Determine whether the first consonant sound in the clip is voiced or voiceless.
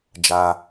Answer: voiced